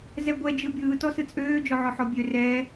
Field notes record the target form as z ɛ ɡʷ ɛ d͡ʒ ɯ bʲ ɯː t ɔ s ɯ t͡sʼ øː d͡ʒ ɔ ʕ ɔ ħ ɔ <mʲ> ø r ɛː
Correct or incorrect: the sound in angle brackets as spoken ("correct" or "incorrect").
incorrect